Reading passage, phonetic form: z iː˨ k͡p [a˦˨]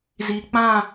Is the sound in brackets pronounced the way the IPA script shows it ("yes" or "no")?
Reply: no